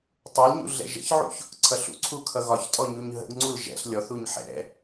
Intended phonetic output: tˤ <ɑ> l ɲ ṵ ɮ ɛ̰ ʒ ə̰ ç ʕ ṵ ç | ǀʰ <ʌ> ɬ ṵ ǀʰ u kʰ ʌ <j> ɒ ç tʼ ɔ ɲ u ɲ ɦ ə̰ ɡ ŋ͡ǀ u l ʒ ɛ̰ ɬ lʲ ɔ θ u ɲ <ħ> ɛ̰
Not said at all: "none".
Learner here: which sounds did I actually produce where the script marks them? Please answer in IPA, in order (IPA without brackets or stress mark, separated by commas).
ʌ, ʌ, ɣ, ħ